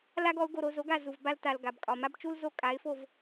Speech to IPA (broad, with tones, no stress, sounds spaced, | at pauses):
l a˥ ɡ ɔ˩˥ ʊ̯ ɡ o˧ ɾ o˧ z o˩˥ ɡ a˥˩ z u˩ v b a˧ l t a˩ l ɡ a˩ b kʼ ɒ˩ m a˥ b t͡ʃ u˥ l z o˥˩ kʼ a˩˥ ɪ̯ f o˥˩ v